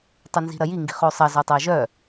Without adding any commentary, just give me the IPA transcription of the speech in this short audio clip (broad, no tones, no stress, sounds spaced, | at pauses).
tˤ ɵ n z i̤ ɾ ɐ j i ŋ ɡ i̤ χ o sˤ ɐ z ɵ tˤ ɜ ʒ œ